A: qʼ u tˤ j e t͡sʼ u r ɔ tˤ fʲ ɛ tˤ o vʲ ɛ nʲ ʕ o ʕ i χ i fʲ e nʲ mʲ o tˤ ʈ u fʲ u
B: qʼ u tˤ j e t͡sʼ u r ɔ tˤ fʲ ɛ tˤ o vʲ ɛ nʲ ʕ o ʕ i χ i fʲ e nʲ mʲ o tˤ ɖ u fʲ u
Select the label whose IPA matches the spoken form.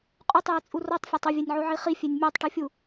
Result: A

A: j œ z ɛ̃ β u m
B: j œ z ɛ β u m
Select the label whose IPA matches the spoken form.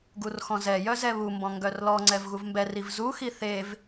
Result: B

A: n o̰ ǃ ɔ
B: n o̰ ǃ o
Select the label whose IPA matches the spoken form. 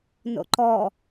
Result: A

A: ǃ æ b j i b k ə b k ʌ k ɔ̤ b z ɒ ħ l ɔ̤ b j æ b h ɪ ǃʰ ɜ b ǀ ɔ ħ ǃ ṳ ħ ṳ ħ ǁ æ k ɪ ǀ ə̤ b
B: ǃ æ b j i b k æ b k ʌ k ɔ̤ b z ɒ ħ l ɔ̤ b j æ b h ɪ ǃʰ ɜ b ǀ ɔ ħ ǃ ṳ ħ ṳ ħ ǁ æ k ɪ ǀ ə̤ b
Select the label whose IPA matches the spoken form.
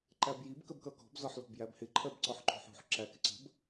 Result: A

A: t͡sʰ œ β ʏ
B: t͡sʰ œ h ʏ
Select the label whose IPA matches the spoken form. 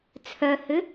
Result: B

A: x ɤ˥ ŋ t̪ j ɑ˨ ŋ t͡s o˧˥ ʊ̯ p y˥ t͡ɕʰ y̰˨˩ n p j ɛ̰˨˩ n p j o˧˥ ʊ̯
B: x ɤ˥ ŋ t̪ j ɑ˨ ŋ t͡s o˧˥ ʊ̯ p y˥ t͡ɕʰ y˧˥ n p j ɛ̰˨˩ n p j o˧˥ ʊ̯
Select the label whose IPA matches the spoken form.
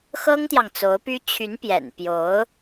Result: B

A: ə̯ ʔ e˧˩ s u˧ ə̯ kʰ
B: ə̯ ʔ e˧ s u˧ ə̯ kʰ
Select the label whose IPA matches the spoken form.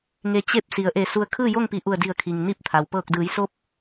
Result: A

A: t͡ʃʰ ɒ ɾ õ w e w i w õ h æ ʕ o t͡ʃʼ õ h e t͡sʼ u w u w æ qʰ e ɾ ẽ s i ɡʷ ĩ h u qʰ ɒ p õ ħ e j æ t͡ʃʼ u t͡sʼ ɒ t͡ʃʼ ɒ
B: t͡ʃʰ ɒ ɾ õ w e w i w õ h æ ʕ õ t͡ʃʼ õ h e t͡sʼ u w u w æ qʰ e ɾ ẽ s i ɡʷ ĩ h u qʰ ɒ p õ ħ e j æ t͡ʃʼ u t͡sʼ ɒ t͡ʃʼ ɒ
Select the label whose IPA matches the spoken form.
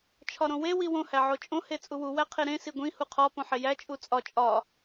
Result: A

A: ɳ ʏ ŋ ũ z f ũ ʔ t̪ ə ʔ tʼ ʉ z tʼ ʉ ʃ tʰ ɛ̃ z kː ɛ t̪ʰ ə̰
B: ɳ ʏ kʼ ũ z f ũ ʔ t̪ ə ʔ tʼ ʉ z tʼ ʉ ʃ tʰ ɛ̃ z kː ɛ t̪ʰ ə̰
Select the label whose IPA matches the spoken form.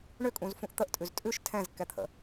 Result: B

